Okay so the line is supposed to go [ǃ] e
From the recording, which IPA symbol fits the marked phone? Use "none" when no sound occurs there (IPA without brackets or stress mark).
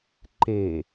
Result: ǃ